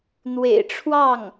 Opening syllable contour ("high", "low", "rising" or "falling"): low